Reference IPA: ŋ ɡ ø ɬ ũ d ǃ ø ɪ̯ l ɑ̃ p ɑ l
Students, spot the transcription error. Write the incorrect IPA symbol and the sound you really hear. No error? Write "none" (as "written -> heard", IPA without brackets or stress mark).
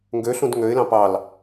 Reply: ǃ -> ŋ